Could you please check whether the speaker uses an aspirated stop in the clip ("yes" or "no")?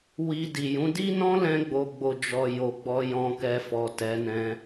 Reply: no